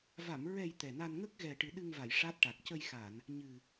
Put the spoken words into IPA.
va˨˩˨mɹɛ˨˩j t̪ɛ˨˩na˧n ŋə˦˥k̚ ɣɛ˨˩ ʈɨ˨˩˦ɗɨ˧ŋva˨˩˨j ʂa˦˥t̚ʈa˨˩k̚ cə˧jxa˨˩˨n | ɲɨ˨˩

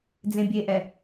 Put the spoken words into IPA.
d͡zẽbʲeʔɛ

